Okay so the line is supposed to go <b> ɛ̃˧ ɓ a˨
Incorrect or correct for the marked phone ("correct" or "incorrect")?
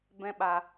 correct